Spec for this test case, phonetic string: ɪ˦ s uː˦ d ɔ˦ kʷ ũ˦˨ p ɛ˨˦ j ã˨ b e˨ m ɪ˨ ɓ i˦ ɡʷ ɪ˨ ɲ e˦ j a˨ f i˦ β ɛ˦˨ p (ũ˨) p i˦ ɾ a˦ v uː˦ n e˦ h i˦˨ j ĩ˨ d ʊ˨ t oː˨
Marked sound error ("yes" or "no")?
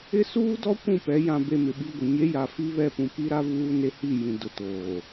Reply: no